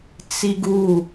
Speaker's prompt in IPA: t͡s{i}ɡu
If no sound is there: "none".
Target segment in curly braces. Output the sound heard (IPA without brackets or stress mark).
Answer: i